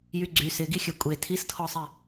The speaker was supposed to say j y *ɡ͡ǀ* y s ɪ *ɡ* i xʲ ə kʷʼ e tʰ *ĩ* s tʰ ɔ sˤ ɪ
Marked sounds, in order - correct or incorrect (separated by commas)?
correct, correct, incorrect